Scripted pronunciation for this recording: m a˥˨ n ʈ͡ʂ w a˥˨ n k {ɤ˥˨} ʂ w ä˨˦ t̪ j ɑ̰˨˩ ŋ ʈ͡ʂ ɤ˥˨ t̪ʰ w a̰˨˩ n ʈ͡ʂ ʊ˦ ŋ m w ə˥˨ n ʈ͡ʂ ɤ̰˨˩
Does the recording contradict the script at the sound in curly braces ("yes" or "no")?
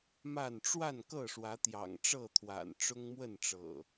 no